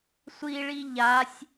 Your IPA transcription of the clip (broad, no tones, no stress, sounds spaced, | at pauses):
sʷ i ɭ i ʎ a sʲ